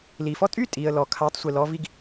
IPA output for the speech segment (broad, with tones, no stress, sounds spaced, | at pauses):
l i˩ f ɔ˥˩ tʼ y˥ tʼ i˩ ə̯ l ɔ˩ kʰ a˩˥ tˤ sʷ i˩ l ɔ˧ v i˧ ɡ